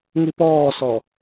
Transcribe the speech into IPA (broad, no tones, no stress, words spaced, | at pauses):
ŋipɔːsɔ